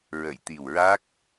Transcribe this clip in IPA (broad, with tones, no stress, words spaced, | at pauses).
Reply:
ɹə˨˩˨jt̪i˨˩wɹa˦˥k̚